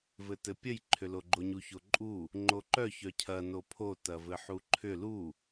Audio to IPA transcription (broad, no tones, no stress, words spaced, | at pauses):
vɘtɘpʲəj ǃʰʏloɡ͡ǃoɲu çoǃʼu | ŋ͡ǃoǃœ çœcʰɐ nopʰo tɐvɘħuǃʰʏ lu